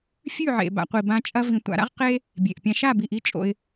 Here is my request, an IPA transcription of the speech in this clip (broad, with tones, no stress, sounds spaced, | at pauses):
fʲ ʉ˦˨ ʕ ḛ˨ b a̰˨ qʷ i˨ b ã˧ t͡ʃʼ ɐ˧ v ĩ˨ tʷ a̰˨ ɾ a̰˦ ʁ q e˦ | bʲ e˨ ʔ pʲ ã˧ ʃ a˦˨ b i˨ ʔ i˦ t͡ʃʼ o̰˧ ɪ̯